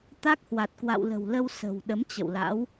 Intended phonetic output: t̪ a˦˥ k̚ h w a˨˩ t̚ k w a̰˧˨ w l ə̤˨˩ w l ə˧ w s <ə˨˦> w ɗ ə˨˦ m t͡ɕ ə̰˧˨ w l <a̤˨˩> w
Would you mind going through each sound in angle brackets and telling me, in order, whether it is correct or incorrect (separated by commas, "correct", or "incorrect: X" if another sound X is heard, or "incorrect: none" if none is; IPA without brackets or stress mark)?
incorrect: ə̤˨˩, incorrect: a̰˧˥